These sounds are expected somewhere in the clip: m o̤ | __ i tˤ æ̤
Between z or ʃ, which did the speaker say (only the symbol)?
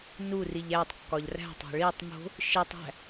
ʃ